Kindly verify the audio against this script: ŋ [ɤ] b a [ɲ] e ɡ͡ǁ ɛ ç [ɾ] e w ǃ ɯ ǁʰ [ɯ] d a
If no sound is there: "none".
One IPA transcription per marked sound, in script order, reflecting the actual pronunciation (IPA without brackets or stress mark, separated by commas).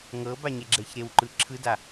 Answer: ɤ, ɲ, ɾ, ɯ